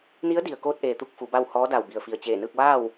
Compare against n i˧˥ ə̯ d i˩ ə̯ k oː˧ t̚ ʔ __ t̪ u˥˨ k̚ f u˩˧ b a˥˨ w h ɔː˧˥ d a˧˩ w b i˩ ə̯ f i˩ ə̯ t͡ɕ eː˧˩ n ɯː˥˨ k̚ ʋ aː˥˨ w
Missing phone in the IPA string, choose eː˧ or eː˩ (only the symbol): eː˩